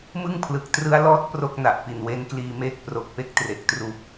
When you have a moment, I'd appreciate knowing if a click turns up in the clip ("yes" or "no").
no